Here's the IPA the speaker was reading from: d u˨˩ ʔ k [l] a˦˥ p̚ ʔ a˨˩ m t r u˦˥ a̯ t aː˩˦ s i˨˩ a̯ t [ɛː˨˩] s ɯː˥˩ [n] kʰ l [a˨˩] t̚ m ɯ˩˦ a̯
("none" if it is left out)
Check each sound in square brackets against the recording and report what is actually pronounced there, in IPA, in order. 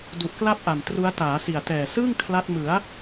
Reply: l, ɛː˨˩, ŋ, a˦˥

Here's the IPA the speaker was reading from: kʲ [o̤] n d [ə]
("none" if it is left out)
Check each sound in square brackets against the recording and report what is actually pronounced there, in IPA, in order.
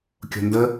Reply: o̤, ə

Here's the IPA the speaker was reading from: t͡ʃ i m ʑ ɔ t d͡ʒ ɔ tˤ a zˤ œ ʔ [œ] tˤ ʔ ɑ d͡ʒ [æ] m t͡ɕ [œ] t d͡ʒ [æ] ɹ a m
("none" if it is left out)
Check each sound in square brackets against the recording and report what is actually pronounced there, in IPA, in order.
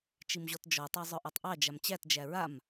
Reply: œ, a, æ, æ

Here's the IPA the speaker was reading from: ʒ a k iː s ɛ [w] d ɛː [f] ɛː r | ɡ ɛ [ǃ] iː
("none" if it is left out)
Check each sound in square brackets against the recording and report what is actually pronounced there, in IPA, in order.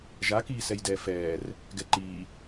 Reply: j, f, ǃ

